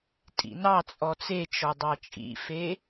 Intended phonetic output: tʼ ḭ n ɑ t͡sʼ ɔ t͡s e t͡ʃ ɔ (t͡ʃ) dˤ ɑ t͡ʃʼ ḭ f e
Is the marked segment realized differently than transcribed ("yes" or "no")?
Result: yes